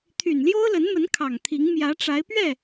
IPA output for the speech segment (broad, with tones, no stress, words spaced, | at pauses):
t̪ʰy˨˩nljo˥ʊ̯lə˧˥nmə˧˥n kʰɑ˨˩ŋt̪ʰi˧˥ŋ mjä˧˥ʈ͡ʂa˧˥ɪ̯pɥɛ˥˩